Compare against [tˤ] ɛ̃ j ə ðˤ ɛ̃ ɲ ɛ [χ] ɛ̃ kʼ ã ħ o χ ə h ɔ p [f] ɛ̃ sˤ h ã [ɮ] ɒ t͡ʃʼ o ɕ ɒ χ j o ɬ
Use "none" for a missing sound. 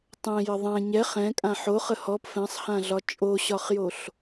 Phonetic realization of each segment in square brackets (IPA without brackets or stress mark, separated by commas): tˤ, χ, f, ɮ